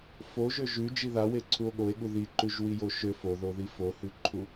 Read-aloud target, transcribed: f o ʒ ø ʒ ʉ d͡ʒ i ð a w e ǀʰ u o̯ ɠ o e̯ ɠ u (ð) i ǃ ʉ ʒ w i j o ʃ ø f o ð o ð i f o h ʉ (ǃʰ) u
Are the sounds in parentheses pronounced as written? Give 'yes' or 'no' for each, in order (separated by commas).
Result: yes, yes